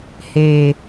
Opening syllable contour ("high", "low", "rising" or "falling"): low